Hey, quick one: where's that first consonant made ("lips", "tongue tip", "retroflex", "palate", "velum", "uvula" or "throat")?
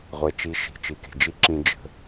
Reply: uvula